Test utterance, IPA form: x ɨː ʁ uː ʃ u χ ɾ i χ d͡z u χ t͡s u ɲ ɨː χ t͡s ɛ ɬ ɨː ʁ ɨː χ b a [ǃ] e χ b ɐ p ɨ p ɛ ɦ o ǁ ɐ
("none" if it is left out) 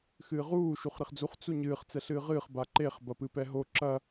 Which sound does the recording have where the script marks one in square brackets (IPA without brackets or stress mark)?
ǃ